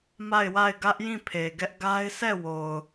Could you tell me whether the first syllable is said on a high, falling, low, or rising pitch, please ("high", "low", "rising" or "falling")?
falling